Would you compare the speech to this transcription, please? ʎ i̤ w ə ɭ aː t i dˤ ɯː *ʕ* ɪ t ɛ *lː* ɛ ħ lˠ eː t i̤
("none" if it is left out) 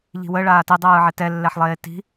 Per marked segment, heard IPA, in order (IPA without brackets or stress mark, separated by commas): ʕ, lː